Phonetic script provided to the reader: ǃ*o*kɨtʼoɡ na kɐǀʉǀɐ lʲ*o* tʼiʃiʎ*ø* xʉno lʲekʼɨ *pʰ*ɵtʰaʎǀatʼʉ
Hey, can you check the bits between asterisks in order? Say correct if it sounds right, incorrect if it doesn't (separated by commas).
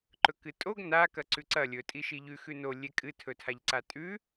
incorrect, incorrect, incorrect, incorrect